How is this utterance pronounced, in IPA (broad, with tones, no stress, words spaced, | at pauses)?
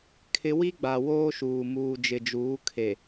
kʰɪ˦ wi˦ɡ͡ba˨ woː˦ʃuː˨ muː˨d͡ʒɪ˨d͡ʒuː˨˦ kʰe˨